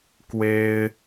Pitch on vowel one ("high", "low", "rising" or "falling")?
high